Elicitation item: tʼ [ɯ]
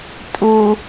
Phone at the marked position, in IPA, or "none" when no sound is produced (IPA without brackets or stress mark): u